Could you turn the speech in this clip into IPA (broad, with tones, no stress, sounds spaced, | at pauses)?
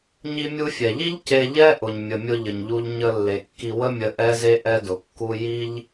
ɲ i˧ mʲ u˧ fʲ ɛ˩ ʎ i˥ ʎ c e˧ ʎ ɛ˥ ʔ ʊ˩ ɲ mʲ ə˩ mʲ ʊ˧ ʎ ə˩ ɲ ʎ u˧ ʎ ɲ ə˧ lː e˩ kː i˧ w ə˥ mʲ ə˧ ʔ ɛ˥ z e˥ ʔ ɛ˧ d ʊ˩ kː u˧ j i˥ ʎ